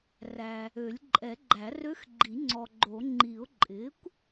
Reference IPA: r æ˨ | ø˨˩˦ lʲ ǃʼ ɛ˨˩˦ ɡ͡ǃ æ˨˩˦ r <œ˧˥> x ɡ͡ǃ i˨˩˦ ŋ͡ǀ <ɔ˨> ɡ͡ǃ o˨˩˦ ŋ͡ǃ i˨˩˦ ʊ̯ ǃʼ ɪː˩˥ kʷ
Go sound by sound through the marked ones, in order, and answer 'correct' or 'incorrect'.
incorrect, correct

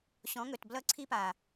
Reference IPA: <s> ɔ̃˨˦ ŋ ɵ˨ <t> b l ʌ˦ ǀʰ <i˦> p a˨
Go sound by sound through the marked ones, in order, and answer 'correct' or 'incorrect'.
incorrect, correct, correct

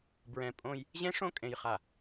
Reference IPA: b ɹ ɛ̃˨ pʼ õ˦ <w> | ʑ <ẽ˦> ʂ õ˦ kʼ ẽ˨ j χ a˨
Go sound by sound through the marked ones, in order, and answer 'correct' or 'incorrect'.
incorrect, correct

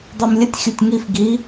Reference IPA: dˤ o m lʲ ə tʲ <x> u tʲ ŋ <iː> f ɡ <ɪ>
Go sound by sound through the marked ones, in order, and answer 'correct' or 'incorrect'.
incorrect, incorrect, incorrect

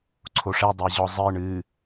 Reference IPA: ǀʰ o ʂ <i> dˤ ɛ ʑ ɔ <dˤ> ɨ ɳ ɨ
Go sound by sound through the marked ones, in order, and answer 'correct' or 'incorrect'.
incorrect, incorrect

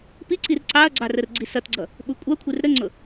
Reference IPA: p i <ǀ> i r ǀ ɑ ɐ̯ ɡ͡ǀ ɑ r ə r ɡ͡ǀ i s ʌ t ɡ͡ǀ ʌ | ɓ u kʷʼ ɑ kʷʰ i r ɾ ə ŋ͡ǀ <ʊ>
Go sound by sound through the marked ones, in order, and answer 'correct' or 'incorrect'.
correct, correct

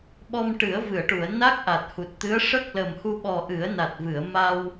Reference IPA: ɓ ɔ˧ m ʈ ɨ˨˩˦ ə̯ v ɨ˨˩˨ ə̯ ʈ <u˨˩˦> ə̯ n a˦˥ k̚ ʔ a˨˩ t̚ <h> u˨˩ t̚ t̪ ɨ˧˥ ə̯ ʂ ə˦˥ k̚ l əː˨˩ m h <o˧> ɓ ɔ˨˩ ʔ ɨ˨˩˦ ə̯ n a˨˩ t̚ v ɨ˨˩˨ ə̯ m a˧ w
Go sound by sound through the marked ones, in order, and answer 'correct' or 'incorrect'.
incorrect, correct, incorrect

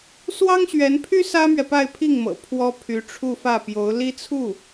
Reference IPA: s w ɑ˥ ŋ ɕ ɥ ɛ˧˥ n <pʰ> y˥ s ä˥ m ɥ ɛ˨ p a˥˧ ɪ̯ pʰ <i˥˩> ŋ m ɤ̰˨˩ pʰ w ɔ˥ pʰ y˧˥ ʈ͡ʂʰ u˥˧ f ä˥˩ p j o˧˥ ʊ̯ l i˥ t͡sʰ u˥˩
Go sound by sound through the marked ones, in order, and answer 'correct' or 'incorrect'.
correct, correct

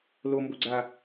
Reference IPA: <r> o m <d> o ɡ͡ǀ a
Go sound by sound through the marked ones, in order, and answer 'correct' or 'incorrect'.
incorrect, incorrect

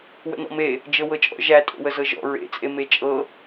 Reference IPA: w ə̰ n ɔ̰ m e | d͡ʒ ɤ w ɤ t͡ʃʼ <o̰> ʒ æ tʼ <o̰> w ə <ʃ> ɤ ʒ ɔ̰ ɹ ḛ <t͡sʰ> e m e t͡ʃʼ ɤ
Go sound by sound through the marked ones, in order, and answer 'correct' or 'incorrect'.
incorrect, correct, incorrect, incorrect

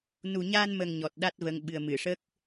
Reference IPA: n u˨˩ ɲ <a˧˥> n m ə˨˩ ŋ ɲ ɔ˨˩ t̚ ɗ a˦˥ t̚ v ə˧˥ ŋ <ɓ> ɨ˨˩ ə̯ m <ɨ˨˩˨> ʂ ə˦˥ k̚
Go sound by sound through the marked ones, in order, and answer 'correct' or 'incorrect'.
incorrect, correct, correct

